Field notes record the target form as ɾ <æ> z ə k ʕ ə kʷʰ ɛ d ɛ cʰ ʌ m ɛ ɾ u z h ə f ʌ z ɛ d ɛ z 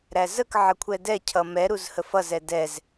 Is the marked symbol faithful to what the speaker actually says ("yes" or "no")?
yes